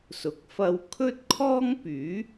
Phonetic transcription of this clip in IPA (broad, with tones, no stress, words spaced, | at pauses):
sʊ˨˥k̚fɐ˧w kʰɵ˥t̚kʰɔː˥ŋpyː˨˥